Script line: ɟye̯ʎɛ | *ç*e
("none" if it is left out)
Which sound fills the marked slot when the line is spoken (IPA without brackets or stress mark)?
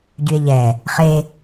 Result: χ